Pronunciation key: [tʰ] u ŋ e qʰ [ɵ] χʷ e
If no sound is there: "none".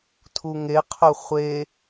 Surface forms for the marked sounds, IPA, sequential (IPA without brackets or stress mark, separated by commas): tʰ, ɵ